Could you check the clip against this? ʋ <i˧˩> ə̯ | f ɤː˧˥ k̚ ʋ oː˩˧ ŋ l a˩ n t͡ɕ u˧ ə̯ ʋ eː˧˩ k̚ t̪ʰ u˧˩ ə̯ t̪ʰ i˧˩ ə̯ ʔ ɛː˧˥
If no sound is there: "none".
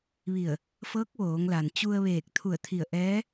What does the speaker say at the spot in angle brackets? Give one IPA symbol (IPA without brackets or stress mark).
i˧˩